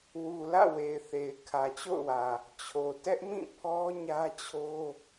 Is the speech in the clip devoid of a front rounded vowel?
yes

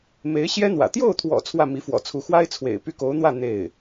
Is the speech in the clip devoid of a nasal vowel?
yes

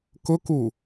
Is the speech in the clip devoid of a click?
yes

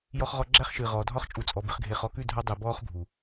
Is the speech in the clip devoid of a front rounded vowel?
yes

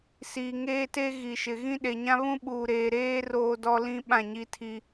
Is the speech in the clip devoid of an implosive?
no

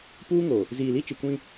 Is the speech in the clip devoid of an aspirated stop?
yes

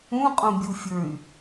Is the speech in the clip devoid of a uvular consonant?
no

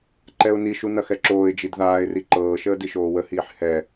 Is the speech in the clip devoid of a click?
no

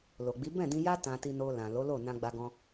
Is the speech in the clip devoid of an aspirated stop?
yes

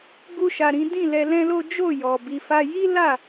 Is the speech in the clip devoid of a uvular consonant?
yes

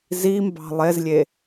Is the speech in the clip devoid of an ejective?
yes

